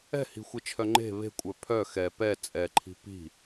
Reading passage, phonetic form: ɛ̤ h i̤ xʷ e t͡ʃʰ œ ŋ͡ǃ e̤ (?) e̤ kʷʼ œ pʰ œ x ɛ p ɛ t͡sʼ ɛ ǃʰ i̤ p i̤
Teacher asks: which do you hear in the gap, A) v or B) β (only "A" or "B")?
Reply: B